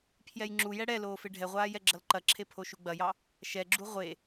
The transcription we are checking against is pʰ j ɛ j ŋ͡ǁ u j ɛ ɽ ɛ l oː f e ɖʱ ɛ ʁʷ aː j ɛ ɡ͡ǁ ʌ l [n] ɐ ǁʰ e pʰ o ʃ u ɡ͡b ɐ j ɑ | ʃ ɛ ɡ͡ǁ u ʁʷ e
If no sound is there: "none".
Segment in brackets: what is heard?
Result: ǃ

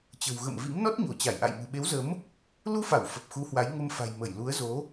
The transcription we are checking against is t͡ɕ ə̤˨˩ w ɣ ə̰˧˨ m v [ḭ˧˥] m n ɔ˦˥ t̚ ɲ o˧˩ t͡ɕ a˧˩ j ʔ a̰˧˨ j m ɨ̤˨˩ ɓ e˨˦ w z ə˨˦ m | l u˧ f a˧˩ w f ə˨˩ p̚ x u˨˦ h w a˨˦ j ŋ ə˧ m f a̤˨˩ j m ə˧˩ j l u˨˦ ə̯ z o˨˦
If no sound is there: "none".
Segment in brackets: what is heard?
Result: ḭ˧˥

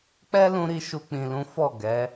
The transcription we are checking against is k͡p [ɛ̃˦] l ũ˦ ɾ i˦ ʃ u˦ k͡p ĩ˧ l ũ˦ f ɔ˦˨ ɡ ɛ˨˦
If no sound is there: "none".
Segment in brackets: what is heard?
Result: ɛ˦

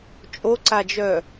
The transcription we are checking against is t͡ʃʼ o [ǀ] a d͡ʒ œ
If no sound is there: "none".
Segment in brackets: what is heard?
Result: ǀ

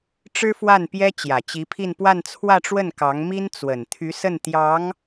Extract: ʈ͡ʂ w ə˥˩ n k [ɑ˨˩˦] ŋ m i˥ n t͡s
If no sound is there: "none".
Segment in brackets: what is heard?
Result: ɑ˧˥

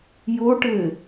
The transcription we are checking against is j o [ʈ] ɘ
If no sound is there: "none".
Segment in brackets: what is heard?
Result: ʈ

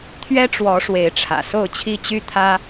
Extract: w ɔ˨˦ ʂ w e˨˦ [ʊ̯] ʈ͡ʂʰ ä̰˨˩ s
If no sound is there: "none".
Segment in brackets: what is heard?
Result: ɪ̯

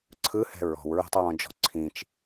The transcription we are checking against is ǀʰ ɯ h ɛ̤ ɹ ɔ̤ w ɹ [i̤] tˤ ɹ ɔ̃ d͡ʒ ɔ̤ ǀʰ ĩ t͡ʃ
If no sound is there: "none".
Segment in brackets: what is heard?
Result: i̤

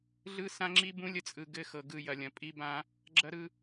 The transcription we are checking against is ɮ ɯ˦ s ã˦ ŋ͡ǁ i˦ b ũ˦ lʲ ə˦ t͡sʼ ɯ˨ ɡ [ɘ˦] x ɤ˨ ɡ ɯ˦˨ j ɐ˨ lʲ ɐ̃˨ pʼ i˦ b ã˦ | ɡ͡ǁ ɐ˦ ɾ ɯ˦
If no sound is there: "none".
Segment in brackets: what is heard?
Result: ɘ˦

